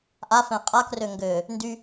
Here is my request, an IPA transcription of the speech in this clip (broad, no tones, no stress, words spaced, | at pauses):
ʔafɛ̃ qʼakrø ŋɡø | ndy